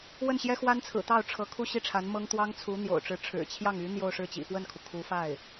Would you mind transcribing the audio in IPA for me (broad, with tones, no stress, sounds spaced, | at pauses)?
w ə˥˩ n ɕ j ɛ˥ x w a˥ n t͡sʰ ɹ̩˨˩ t̪ ɑ˥˩ ʊ̯ ʈ͡ʂʰ ɤ˧˥ kʰ u˥˧ ɕ i˥˩ ʈ͡ʂʰ a˧˥ n m ɤ˥ ŋ t̪ w ɑ˥ ŋ t͡sʰ u˧˥ n̪ j o̰˨˩ ʊ̯ ʈ͡ʂ ɻ̩˧˥ ʈ͡ʂʰ ɻ̩˨˩ t͡ɕʰ j ɑ˥˩ ŋ y˧˥ n̪ j o˥˧ ʊ̯ ʂ ɻ̩˥˩ t͡ɕ ḭ˨˩ f w ə˥˩ n kʰ u˩ kʰ u˧˥ f a˥˩ ɪ̯